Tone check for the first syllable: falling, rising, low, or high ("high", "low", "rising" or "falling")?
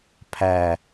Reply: low